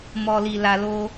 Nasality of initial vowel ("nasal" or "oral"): oral